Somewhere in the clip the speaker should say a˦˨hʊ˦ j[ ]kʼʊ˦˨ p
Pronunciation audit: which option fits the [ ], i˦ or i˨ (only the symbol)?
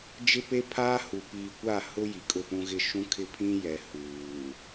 i˨